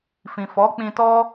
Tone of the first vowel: low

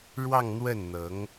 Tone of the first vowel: falling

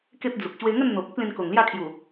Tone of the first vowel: high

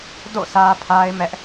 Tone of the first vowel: falling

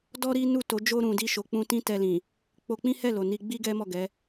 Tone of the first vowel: high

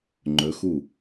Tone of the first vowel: rising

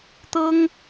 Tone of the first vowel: high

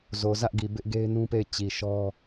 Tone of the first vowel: low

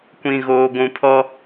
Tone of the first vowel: low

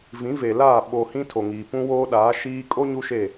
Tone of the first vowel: rising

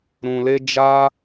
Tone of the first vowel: low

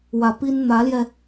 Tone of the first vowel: low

